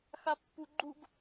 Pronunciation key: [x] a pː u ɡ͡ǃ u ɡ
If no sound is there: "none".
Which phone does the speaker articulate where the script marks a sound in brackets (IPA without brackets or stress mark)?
x